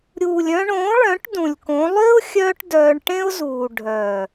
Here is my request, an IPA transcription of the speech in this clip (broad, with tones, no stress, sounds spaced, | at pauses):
ɾʲ uː˨ lʲ œ̃˧ ɳ õː˨˦ ɭ œ̃˨˦ ʈ d ũ˨ lʲ k õ˨˦ lˠ ʏː˦ ʊ̯ xʲ œː˦ ʈ d œː˧ ɳ ʈ ẽ˦ ʊ̯ z uː˨ ɖʱ œ˨